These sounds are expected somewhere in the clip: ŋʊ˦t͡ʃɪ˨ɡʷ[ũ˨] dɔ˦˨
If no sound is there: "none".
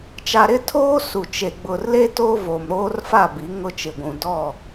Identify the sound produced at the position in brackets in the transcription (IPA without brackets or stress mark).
ũ˨